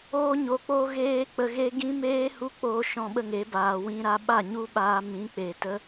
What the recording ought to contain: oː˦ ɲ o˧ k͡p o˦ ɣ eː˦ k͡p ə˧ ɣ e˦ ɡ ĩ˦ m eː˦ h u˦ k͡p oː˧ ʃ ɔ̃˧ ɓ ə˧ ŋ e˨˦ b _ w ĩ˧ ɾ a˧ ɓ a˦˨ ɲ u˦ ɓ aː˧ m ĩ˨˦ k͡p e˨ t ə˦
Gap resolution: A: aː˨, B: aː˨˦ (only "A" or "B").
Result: A